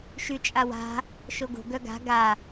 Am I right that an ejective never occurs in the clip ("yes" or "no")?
no